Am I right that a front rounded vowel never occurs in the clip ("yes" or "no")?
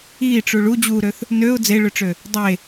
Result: no